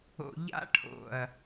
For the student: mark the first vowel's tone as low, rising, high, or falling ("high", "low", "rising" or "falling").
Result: low